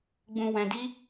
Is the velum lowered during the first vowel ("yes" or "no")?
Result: yes